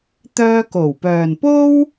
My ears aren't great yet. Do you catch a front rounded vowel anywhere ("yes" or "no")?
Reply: yes